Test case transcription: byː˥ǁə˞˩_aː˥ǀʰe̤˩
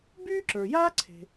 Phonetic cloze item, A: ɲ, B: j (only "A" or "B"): B